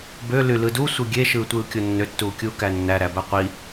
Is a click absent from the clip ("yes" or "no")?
yes